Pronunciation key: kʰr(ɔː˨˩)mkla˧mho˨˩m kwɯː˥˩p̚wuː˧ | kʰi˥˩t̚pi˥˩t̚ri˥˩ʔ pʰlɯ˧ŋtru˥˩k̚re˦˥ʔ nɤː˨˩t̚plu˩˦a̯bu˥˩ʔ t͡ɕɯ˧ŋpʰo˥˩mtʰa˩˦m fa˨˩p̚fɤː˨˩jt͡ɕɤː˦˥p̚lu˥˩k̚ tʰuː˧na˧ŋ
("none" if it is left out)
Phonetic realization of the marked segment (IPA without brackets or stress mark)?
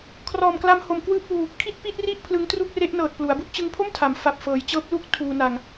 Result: ɔː˨˩